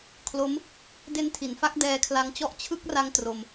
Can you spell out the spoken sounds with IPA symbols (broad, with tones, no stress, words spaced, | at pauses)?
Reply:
kʰlo˦˥m | de˦˥ntʰi˨˩nfa˦˥k̚ dɛː˧kʰla˧ŋt͡ɕɔ˦˥ʔ t͡ɕʰɯ˦˥k̚ra˧ŋ tro˧m